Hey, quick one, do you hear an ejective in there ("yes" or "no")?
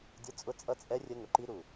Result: yes